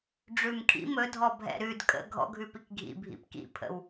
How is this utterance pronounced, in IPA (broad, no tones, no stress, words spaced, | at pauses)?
ɖ͡ʐʉmkʰḭm ɵdʱɔbʱɛ̰ ɾʉd kʼə̰ ɡʱɔ̰ɡʱʉpik ɡʱḭbʱḭp kḭpʰə̰w